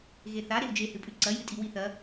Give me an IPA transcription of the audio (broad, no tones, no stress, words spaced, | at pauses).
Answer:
ɣeθa ɾewd͡ʒehɨpʼʉ ǀɐjɨ tʼiwiθɐ